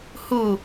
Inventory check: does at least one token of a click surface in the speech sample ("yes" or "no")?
no